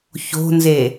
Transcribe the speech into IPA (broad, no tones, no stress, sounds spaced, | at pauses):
ç o̤ n z e